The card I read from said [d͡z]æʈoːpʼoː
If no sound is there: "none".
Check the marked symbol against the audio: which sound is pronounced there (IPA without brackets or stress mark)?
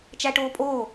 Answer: t͡ʃ